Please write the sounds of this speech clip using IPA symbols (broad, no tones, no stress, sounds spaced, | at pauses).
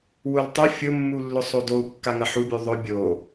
w ʊ l tˤ ʊ fʲ ʊ mː u lː ʊ sˤ o d o u̯ kː a ŋ ɐ ħ u bʲ u ðˤ ʊ bʲ o